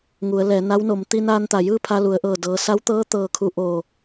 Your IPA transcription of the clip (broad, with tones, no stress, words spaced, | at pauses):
ŋu˩˧ə̯lɛː˩˧ na˧˥wno˩˧m t̪i˧naː˧nt̪a˩jɯː˥˨ pʰa˧lu˩˧ə̯ʔɤː˧˩ dɤː˩˧ sa˧˥wt̪ɤː˧˥ t̪ɤː˧kʰu˧˥ʔo˧˩